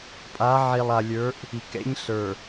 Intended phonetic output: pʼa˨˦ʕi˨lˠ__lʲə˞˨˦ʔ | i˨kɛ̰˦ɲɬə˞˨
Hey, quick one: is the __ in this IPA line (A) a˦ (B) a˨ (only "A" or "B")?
B